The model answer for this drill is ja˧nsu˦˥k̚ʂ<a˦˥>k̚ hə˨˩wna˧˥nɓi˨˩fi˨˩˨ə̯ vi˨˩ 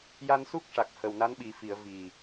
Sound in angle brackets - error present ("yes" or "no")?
yes